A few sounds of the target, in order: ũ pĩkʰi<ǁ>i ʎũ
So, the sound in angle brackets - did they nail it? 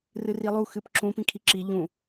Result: yes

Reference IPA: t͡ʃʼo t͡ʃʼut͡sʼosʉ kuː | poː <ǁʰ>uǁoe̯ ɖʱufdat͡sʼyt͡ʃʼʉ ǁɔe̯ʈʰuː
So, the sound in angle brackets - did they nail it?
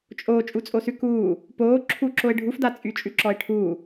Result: yes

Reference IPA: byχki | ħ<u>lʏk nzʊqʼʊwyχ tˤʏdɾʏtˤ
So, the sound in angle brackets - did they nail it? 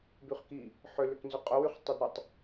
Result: no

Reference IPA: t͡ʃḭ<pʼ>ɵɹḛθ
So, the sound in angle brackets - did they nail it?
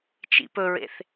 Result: no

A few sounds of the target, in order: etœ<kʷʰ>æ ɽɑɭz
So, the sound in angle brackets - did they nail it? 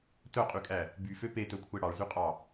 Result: yes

